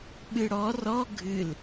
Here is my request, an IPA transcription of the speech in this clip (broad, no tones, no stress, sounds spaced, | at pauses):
ɓ ɨ ɽ ɔ r ɔ ɡʱ ɨ l